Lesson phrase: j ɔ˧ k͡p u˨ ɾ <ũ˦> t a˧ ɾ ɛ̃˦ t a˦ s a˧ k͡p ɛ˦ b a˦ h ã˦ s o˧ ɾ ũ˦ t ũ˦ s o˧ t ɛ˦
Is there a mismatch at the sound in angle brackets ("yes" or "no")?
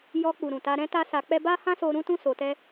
yes